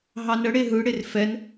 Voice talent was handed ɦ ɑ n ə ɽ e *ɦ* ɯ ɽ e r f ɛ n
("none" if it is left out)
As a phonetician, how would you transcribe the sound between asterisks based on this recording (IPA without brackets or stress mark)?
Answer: ɦ